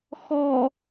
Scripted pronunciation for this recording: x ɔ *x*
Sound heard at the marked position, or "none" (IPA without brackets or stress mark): none